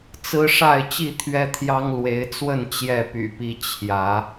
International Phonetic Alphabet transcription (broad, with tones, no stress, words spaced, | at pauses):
t͡sɹ̩˦ʂa˥˨ɪ̯ t͡ɕi˥˨t̪ʰɥɛ˦t̪ʰjɑ˦ŋ lwe˨˦ɪ̯t͡swə˥˨n t͡ɕjɛ˥˨py̰˨˩pi˦ t͡ɕʰjä˨˦